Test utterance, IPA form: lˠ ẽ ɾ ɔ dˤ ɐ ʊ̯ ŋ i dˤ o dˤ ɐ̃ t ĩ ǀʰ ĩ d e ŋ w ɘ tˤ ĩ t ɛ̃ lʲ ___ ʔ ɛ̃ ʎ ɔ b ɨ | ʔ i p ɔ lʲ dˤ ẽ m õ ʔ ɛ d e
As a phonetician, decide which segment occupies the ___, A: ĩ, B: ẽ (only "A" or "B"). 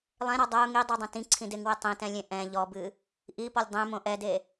B